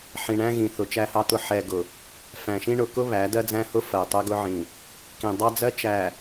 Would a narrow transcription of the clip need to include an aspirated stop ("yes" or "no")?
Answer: no